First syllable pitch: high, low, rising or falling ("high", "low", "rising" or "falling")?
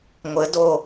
rising